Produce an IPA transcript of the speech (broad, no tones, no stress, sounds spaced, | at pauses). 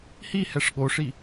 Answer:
h i h ɛ ʂ ɠ o ʂ i